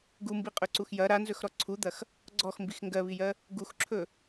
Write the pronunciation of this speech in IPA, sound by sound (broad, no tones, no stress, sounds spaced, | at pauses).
ɡ u m b i qʼ ɵ ǀ u x j ɐ ɾ a n z ɵ x ɾ ɔ ǀʰ u d̪ ɐ x | ɡ͡ǀ ɔ x m b i x ŋ ɡ ɜ β i j ɜ | ɡ u x ǁʰ ɵ